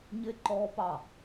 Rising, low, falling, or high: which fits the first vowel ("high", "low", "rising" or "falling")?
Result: high